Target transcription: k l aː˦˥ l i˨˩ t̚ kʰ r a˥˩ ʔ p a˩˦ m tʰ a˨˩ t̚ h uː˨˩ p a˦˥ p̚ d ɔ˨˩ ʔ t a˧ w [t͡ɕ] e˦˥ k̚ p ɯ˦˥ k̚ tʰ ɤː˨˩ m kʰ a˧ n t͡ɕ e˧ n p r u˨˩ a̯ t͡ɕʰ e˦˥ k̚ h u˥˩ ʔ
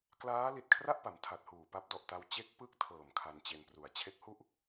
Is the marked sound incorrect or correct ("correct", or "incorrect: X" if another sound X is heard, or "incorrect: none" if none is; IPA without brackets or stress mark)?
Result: correct